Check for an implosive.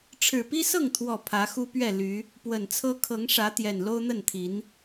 absent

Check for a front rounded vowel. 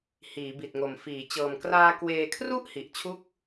absent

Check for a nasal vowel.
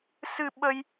absent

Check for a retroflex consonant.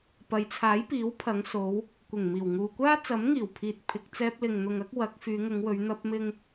absent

